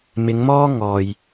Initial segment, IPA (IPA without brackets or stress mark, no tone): m